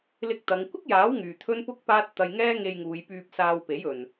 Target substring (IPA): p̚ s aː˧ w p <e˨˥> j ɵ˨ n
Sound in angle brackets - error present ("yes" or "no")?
no